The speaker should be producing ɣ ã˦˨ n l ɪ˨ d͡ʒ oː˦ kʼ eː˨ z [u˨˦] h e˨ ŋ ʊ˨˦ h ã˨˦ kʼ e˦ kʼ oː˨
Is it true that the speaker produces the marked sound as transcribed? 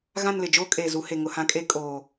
yes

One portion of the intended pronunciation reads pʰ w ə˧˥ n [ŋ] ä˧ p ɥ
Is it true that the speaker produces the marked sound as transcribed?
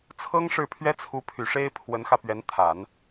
no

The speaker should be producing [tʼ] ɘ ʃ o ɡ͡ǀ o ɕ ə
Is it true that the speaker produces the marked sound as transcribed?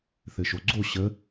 no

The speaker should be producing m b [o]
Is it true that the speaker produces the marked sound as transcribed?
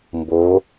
yes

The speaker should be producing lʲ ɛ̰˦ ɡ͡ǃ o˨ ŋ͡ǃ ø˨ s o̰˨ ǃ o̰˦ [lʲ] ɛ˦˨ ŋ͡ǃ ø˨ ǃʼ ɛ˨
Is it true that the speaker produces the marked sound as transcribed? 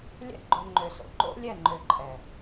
yes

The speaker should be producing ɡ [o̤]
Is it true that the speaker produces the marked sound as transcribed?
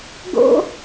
no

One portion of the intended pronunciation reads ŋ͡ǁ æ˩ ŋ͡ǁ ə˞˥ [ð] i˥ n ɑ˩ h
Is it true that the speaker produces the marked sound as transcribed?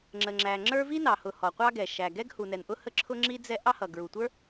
no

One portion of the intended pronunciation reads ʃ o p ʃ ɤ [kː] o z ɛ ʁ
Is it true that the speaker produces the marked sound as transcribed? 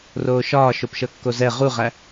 yes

